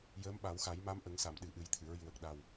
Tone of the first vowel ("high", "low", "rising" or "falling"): rising